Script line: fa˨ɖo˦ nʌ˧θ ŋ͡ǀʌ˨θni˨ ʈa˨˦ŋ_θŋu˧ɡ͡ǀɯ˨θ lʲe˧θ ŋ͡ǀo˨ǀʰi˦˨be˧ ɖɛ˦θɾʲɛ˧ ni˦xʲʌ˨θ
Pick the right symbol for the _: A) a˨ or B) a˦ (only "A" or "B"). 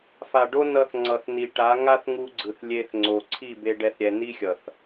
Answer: B